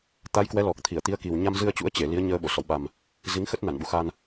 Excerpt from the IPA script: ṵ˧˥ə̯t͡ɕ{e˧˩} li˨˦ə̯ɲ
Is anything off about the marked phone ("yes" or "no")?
no